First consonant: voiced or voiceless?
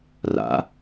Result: voiced